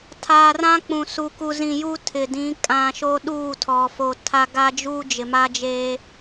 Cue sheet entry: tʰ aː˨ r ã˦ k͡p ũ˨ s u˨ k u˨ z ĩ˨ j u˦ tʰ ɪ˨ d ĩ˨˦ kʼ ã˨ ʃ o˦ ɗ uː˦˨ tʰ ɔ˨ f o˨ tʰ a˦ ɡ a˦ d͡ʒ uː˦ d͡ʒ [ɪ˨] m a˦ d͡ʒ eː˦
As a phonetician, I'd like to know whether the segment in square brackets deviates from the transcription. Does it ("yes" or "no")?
no